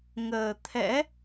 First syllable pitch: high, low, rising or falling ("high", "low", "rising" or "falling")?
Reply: low